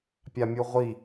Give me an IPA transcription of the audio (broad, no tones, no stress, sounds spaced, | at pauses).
pʲ a mʲ u ʁʷ i